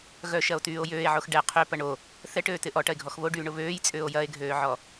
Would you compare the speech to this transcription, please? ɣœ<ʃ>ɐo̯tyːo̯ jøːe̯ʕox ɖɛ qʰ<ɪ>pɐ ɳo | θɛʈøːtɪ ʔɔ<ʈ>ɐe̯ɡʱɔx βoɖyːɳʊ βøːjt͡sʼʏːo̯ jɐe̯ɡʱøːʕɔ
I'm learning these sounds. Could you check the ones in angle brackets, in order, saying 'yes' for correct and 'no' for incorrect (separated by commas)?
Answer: yes, no, yes